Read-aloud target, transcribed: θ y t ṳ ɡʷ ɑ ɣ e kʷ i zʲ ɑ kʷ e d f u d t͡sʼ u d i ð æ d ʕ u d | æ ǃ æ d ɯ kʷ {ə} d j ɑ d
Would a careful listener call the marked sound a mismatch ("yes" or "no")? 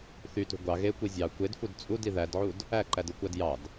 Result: yes